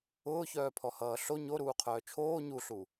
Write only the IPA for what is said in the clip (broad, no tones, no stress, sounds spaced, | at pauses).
ʊː ç œː pʰ ɔ h ʌː ɬ o ɲ o ɾ uː qʰ œː t͡ʃʰ oː ɲ u ɬ u